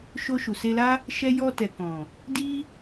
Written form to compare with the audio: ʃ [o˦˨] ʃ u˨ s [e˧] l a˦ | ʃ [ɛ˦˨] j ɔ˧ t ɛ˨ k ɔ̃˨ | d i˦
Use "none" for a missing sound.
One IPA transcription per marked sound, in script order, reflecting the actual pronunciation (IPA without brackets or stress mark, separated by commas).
o˧, e˧, ɛ˧